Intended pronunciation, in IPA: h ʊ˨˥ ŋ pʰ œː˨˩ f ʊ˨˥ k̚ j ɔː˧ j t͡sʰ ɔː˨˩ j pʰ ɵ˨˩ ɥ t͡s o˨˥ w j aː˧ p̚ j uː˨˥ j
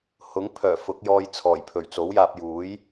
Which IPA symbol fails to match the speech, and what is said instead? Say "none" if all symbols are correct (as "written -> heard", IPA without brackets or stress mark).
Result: none